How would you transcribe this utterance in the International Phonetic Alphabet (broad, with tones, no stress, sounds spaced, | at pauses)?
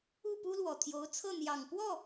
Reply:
u˥˩ p u˥ l w ɔ˨˩ t̪ʰ j o˧˥ ʊ̯ t͡sʰ ɤ˥˩ n̪ j ɑ˨˩ ŋ p w ɔ˥˩